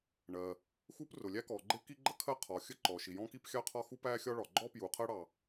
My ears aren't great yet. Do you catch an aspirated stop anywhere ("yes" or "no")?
yes